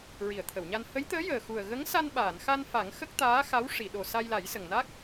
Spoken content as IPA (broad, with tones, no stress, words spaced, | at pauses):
ɹi˨˩˨ə̯t̪ʰə˨˩˨wɲa˧n hə˧˥jt̪əː˧˥jəː˨˩ xu˨˩ə̯ɣə˧˥ŋ sa˧nɓaː˨˩˨nxa˧n fa˨˩˦ŋxə˦˥k̚t̪aː˧˥ xa˧˥w ʂi˨˩˨ɗo˨˩ sa˧jla˨˩˦jsə˨˩ŋna˦˥k̚